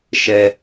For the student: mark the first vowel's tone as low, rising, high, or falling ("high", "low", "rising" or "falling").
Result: high